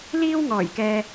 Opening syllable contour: high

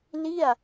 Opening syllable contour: falling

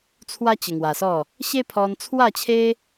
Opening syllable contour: high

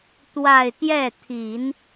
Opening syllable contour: falling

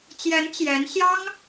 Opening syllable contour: rising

